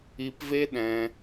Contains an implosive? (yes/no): yes